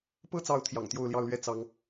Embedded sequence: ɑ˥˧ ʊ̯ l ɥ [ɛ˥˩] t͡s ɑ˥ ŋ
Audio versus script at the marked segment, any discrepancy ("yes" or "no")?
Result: no